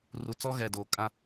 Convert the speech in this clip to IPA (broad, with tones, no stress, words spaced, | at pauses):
ru˨t͡sɔ˦ ɣɛ˨doː˨kʼã˦